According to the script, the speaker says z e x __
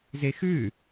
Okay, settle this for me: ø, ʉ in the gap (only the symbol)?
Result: ʉ